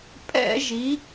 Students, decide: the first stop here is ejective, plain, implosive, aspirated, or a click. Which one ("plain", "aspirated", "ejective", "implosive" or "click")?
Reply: ejective